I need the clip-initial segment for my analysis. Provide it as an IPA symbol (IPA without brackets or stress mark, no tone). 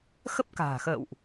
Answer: x